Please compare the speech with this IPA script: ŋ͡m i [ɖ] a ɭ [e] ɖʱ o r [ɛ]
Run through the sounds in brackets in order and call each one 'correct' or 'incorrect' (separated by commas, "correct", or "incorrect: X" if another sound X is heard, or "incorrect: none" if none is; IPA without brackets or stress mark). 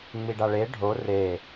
correct, correct, incorrect: e